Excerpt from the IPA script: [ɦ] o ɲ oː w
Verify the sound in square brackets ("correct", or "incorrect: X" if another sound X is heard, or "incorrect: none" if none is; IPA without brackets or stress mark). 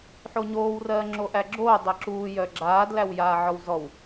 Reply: incorrect: ħ